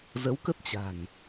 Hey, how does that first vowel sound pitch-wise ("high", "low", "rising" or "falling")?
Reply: rising